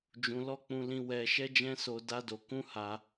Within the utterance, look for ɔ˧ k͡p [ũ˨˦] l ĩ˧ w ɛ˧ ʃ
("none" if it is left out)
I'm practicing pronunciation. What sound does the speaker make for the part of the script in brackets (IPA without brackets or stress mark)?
ũ˧